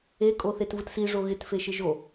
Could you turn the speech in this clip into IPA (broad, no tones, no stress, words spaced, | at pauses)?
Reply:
e kʼoθetvɯtsi ʐoɣɪt feʃɪʒo